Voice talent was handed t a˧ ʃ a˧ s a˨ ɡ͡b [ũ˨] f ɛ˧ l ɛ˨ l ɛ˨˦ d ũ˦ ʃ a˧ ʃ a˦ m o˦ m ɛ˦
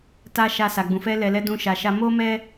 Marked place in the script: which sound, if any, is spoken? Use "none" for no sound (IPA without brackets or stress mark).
ũ˨